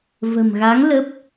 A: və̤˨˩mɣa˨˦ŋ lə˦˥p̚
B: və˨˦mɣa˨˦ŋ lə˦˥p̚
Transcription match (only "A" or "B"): A